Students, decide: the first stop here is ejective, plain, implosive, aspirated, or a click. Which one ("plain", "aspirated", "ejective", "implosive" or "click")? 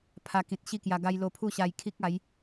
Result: aspirated